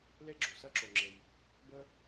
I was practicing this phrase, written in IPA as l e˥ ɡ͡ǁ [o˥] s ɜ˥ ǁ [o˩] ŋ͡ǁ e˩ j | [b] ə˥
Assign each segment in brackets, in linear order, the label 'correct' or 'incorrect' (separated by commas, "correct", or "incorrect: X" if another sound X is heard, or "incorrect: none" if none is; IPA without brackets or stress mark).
incorrect: o˩, correct, correct